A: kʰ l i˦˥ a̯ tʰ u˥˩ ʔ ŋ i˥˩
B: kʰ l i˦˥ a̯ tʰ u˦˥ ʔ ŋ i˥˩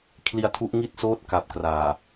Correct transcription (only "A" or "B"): B